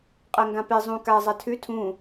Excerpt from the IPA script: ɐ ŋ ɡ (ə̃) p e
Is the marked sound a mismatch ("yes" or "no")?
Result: yes